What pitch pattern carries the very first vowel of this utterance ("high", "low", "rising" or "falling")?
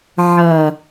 low